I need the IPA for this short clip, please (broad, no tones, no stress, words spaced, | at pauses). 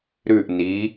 ɾʉʔ ni